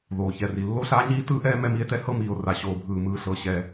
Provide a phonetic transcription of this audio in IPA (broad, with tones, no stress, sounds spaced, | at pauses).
ð oː˩ ç ɛ˩ r i˩ lː o˥ ɬ aː˥ ɲ iː˥ t ɯː˥ ʔ ɛː˥ m ɛ˥ m i˥ e̯ t ɛ˥ h ɤ˥ m iː˩ o̯ r a˩ ɕ oː˩ bʱ ɯː˩ m ɯː˩ ɬ ɤ˩ ɕ ɛ˩